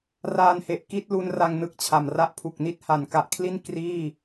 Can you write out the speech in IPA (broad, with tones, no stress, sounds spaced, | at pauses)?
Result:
r aː˧ n h e˨˩ ʔ k i˦˥ t̚ l u˦˥ n r a˧ ŋ n ɯ˦˥ k̚ t͡ɕʰ a˨˩ m r a˥˩ ʔ pʰ u˨˩ k̚ n i˥˩ t̚ h a˨˩ n k a˨˩ ʔ kʰ l i˥˩ n k r iː˥˩